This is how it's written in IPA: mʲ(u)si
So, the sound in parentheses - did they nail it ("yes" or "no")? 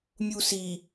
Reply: yes